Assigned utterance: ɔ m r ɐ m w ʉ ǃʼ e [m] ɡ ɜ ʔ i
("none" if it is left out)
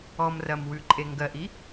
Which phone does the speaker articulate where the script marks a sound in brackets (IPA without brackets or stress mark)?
ŋ